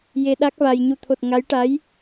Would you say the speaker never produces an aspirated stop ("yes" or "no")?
no